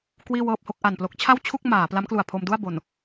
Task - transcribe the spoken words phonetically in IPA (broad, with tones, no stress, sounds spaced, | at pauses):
k w iː˥˩ w ɤː˥˩ p̚ h o˥˩ k̚ ʔ a˨˩ n p l o˦˥ k̚ t͡ɕʰ a˥˩ w t͡ɕʰ u˥˩ k̚ m aː˩˦ p l a˦˥ m k l u˨˩ a̯ pʰ o˧ m d u˥˩ a̯ b o˨˩ n